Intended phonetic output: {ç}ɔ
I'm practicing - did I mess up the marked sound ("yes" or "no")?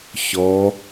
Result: no